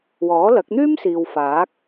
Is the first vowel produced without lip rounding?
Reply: no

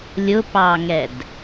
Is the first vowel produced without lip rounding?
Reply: no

